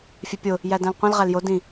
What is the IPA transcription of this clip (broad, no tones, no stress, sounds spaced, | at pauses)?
fʲ e pʲ o | j æ d æ̃ l qʷ ĩ l ʁ æ l j o d ĩ